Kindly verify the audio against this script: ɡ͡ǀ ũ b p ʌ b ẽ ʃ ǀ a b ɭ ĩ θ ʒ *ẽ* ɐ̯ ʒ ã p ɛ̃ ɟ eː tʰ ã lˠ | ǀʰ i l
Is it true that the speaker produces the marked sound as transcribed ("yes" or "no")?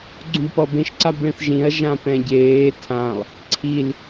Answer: no